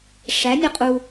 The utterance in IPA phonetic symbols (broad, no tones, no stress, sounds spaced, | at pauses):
ʂ æ nʲ ʌ qʼ u